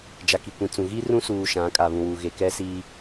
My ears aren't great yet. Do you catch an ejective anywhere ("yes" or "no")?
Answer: yes